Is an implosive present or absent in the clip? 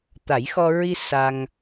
absent